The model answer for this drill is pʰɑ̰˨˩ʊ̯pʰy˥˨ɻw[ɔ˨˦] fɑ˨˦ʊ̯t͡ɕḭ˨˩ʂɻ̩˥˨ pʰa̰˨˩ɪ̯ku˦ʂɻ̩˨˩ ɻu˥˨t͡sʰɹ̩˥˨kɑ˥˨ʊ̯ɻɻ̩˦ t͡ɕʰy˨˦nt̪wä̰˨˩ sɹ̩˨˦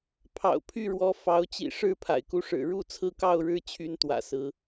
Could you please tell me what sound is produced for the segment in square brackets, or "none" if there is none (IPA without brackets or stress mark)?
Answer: ɔ˨˦